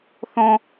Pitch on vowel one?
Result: high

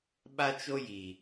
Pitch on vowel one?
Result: high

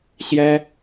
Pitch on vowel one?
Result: high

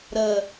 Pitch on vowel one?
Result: low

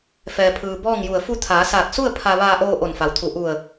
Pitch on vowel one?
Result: low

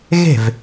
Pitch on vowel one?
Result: falling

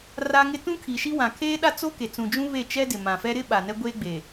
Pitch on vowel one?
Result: high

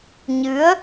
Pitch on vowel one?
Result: rising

